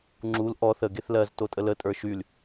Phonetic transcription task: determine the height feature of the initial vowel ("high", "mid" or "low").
high